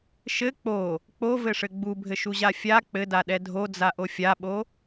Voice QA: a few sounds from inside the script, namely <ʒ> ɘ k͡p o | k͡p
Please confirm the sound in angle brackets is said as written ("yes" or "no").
no